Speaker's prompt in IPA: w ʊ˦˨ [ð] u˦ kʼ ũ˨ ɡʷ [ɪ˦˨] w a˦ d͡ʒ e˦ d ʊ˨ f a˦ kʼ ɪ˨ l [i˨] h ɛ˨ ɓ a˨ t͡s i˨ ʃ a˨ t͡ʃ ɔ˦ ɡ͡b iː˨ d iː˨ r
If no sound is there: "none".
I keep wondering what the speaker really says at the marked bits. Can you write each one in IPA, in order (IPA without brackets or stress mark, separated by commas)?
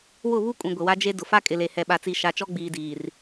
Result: β, ɪ˨, e˨